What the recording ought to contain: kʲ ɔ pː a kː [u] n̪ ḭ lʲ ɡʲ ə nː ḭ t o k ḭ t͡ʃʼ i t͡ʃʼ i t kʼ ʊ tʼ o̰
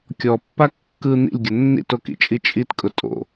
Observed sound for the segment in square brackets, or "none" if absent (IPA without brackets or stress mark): ɯ